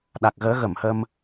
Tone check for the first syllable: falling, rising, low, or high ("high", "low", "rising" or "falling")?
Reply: low